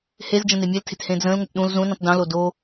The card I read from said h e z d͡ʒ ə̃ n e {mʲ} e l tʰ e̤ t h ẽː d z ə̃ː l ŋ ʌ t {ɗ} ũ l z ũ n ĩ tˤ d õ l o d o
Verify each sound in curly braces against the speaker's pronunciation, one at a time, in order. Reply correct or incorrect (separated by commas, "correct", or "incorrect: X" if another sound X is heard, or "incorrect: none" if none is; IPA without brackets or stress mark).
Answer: correct, correct